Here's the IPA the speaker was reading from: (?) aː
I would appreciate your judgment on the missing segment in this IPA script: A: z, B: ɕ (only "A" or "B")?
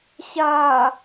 B